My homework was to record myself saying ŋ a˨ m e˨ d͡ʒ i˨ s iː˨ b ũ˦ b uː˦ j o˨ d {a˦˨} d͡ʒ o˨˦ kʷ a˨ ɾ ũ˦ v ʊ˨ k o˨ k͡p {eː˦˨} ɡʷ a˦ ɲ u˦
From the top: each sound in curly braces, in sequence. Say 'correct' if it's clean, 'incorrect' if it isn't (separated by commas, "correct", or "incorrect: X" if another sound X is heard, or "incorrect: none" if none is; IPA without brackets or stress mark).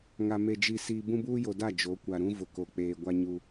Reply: correct, incorrect: eː˨